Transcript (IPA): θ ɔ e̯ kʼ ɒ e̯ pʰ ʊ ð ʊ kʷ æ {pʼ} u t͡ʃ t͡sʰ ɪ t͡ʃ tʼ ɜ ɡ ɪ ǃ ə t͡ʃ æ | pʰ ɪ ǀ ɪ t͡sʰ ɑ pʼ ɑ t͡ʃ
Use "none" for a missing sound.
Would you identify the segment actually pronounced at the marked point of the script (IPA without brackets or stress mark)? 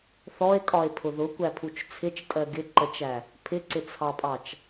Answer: pʰ